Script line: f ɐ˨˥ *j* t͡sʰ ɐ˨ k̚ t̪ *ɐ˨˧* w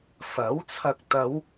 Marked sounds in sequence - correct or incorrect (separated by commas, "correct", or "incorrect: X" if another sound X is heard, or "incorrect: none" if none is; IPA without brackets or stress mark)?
incorrect: w, correct